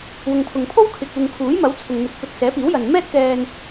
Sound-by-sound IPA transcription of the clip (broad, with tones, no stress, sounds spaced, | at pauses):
w ʊ˨ ŋ pʰ ʊ˨ ŋ pʰ o˥ w kʰ ɪ˨ k̚ uː˨ ŋ kʰ uː˨˥ j m ɐ˨˥ w t͡sʰ ʊ˨ ŋ n̪ ɪ˨˥ k̚ p ɵ˨˥ t̚ s ɛː˨˥ p iː˨˥ w j ɐ˨ n m ɛː˥ t̚ k ɛː˧ n